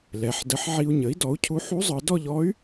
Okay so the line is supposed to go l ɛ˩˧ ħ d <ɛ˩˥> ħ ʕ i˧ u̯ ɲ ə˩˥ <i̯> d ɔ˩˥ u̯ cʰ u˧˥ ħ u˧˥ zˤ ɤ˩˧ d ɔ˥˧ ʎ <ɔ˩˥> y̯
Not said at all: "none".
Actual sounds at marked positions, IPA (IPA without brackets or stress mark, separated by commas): ə˩˥, i̯, ɔ˧˥